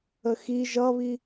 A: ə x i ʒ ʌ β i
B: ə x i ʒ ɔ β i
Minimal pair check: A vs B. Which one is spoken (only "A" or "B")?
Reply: A